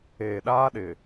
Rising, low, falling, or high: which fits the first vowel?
low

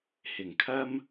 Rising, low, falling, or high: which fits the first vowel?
low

